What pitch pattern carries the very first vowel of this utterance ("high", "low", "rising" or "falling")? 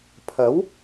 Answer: rising